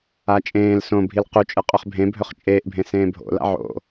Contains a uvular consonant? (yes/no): yes